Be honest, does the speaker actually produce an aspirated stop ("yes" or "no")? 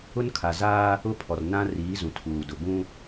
yes